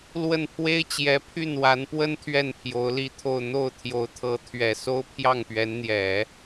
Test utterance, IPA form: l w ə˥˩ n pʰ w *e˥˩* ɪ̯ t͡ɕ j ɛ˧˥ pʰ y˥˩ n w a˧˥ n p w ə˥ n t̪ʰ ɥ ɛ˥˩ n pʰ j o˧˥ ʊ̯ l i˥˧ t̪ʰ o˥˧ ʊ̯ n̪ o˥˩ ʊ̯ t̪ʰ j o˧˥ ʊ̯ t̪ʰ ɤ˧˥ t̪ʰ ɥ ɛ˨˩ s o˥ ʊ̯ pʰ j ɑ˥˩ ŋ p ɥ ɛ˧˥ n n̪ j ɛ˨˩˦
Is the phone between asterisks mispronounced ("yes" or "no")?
yes